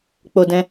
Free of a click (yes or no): yes